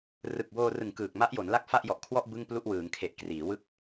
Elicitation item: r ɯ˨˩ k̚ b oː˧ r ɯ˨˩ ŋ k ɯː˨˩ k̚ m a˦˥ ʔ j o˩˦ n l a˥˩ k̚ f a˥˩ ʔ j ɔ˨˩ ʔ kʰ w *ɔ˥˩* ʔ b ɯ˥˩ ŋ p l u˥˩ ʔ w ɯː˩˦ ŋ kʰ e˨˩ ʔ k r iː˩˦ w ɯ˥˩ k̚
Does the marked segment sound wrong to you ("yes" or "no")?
no